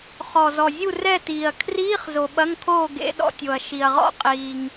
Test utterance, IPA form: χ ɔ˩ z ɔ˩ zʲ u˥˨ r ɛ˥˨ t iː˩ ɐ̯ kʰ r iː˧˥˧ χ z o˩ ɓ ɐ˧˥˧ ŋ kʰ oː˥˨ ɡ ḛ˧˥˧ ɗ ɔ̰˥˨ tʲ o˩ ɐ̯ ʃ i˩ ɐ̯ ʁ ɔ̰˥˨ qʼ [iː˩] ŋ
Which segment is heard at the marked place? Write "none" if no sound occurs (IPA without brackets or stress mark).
iː˩